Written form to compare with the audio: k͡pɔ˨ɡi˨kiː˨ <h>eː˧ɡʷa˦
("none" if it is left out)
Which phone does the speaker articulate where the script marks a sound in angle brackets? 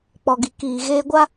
ɣ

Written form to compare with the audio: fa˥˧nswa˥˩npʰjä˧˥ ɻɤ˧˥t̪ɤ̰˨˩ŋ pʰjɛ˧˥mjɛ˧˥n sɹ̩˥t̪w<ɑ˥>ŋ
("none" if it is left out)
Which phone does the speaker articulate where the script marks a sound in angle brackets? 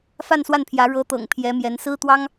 ɑ˥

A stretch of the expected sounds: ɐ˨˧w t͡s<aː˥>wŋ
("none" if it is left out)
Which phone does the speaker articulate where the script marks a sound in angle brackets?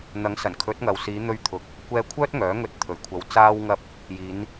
aː˥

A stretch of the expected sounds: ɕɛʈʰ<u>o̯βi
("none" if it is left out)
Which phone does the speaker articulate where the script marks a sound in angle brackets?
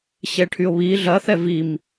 y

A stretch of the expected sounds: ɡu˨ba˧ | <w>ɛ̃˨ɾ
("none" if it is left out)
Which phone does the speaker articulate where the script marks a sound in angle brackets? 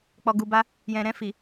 j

